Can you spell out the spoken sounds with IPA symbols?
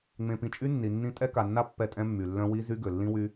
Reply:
ŋ͡m ẽ˨ p ĩ˨ t͡ʃʼ y˦ nː i˨ nː ĩ˦ tʼ ɛ˦ k a˨ nː a˦ pː ɛ˦˨ tʼ ɛ̃˦ mː y˨ lː œ̃˦ w i˦ z y˦ ɡ ø˨ lː ĩ˦ w y˦

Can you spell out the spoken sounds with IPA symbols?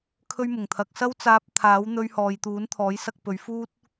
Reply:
kʰ ɵ˥ ɥ m ʊ˨˩ ŋ t̪ʰ ɐ˨˥ k̚ s ɐ˥ w t͡s aː˧ p̚ t̪ʰ aː˨˥ w n̪ ɵ˧ ɥ h ɔː˨ j t̪ uː˨˥ n t̪ʰ ɔː˨˥ j s ɐ˧ k̚ p ɵ˨˧ ɥ f uː˥ t̚

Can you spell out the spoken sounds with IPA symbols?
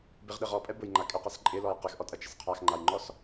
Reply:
b ɪ ʁ ɗ ɪ ʁ ɔ pʼ ɛ b ʊ j ŋ͡ǃ a kʼ ɪ q ɛ s ǃʼ ɪ l ɔ j q ɪ x ʔ ɔ tʼ ɐ t͡ʃ ɪ s qʰ a x ŋ͡ǃ a j ŋ͡ǃ ɔ s

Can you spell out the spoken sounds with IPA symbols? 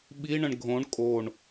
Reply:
ɓ i ɳ ə̃ ɳ ɡʱ õ ɳ kʼ o ɳ

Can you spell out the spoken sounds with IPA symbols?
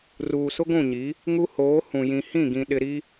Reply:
r uː˨ s ʊ˦ ɡʷ ũ˦˨ ɲ i˨˦ | ŋ u˦ h oː˨˦ h ũ˨ j ĩ˨ h ĩ˦˨ ɡ ĩ˨ ɗ ɪ˨ ɾ i˦

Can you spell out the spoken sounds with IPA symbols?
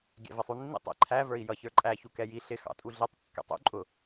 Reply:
ɡʲ æ̰ v ɪ sˤ u nː ḭ tˤ ɛ̰ ǃʰ æ v ə˞ i̯ j ʌ ç ə˞ ǃʼ æ ç u k ɛ j i ɬ ɪ x ɑ̰ tʼ u ɮ i tˤ kː ɛ̰ tˤ ṵ ǃʼ ʊ

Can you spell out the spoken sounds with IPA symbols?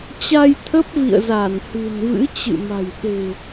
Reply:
t͡ɕ a˧ j t̪ʰ ə˦˥ p̚ v ḭ˧˨ ə̯ z a˧˩ n h ɨ̤˨˩ n v ɨ̰˧˥ t͡ɕ ɨ̰˧˨ m a̤˨˩ j ɗ e̤˨˩

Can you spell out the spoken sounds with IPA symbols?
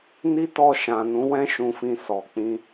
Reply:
n i˦ t ɔ˧ ʃ ã˨ n ũ˨˦ w ɛ̃˦ ʃ ũ˧ f ĩ˧ s ɔ˨ k͡p ĩ˧

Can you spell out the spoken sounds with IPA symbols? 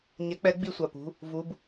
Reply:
ɲ ɛ˨˥ k͡p ɛ˨˥ ɡ͡b i˧˩ sʷ a˩ p ṳ˩˧˩ | v u˩˧˩ b

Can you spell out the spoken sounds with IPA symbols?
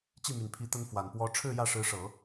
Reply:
t͡ɕ i˥˩ m y˨˩ n pʰ i˧˥ t̪ ə˥ n f w a˨˩ n p w ɔ˧˥ ʈ͡ʂʰ ɻ̩˥˧ j ä˥˩ ʂ ɻ̩˧˥ ʂ ɤ˨˩˦

